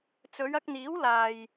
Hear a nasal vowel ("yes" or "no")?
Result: no